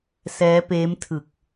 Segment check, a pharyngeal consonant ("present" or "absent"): absent